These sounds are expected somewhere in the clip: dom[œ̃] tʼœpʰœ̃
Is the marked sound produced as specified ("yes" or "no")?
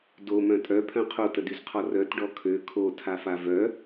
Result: yes